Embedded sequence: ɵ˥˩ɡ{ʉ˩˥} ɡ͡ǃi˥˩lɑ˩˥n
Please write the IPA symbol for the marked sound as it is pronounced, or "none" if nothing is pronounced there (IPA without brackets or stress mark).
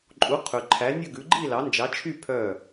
ʉ˩˥